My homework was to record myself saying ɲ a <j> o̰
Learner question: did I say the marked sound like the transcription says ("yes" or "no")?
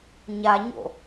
no